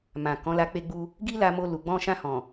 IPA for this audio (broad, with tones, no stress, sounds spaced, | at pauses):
m ã˨ k ɔ̃˨˦ l a˧ k͡p e˧ ɡ͡b u˧ | ɡ i˦ l a˧ m o˧ l u˨ ɡ͡b ɔ̃˧ ʃ ã˧ h ɔ̃˨